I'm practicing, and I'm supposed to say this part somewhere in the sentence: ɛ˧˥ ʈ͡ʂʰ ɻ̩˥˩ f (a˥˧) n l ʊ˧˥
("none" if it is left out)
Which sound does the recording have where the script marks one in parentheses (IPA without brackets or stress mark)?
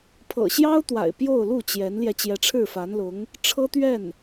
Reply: a˧˥